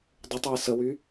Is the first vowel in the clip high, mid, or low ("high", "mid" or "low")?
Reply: high